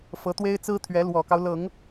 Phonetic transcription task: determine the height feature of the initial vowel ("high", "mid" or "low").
mid